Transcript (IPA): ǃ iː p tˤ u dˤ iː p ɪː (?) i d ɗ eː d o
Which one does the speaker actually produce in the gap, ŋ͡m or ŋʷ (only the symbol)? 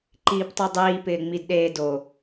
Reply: ŋ͡m